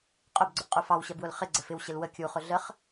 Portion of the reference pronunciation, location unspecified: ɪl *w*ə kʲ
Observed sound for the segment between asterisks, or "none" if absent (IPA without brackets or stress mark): w